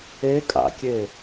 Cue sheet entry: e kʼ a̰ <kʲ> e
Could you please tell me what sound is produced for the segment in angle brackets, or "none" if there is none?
kʲ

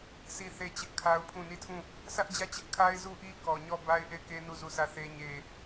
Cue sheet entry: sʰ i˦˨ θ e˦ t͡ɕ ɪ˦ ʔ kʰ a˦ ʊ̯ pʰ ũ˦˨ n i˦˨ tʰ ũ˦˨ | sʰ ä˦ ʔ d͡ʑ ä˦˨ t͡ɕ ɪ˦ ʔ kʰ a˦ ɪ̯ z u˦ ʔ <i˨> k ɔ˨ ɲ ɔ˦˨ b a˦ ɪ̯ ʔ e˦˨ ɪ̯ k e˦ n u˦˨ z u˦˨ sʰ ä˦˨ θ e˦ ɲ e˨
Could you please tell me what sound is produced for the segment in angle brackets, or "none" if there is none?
i˦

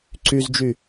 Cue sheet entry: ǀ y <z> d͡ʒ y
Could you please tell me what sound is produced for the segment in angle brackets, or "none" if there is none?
z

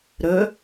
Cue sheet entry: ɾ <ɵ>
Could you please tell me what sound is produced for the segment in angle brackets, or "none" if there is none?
ɵ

